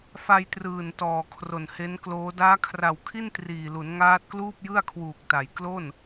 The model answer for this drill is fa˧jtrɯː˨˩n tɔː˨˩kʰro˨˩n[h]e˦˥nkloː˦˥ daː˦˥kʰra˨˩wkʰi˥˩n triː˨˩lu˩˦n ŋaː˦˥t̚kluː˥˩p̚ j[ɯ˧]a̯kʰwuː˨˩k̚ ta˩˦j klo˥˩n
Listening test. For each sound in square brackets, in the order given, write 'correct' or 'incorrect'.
correct, incorrect: ɯ˥˩

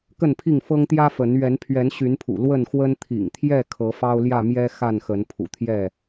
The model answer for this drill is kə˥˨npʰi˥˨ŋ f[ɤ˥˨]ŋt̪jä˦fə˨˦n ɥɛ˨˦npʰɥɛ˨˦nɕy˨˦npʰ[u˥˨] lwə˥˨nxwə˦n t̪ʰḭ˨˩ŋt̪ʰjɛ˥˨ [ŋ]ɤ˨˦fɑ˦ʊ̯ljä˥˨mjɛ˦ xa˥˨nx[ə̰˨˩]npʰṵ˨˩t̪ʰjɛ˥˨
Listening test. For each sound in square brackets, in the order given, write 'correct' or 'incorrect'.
incorrect: ɤ˦, incorrect: ṵ˨˩, incorrect: kʰ, incorrect: ə˨˦

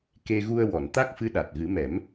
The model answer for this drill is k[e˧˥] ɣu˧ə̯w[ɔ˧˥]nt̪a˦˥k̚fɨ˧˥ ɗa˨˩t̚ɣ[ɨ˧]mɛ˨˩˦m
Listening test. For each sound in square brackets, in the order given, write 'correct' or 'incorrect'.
incorrect: e˧, incorrect: ɔ˨˩˨, incorrect: ɨ˨˩˦

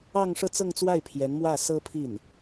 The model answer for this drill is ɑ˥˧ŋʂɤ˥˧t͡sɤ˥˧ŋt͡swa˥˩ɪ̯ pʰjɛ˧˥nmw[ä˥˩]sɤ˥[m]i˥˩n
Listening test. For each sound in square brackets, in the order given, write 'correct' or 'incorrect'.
correct, incorrect: pʰ

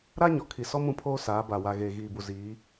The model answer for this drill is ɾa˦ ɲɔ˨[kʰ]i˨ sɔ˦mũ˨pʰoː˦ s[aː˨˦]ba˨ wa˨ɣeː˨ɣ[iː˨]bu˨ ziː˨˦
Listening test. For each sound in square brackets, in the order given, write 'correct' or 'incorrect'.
correct, correct, correct

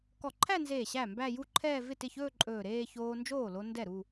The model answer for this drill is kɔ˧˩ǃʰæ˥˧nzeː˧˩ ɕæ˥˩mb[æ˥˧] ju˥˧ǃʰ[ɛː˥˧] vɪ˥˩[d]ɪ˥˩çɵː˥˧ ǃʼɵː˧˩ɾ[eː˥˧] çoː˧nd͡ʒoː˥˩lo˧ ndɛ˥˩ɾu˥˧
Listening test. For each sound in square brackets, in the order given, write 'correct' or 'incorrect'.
correct, correct, incorrect: t, correct

